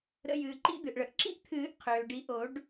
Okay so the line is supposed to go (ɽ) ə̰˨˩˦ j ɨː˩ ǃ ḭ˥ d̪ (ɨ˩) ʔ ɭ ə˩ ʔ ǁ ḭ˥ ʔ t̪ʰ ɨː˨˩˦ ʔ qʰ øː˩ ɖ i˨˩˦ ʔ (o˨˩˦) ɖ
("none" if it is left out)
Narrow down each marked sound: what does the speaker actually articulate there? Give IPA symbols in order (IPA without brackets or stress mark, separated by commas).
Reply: ɾ, ɨ˩, o˨˩˦